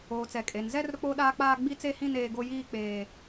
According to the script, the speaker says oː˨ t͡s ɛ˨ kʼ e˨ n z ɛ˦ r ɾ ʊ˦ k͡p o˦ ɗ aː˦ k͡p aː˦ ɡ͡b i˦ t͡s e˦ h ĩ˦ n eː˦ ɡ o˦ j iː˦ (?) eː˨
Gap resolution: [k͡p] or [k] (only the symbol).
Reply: k͡p